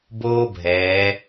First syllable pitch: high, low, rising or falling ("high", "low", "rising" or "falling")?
high